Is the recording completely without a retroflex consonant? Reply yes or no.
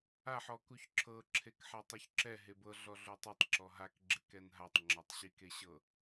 yes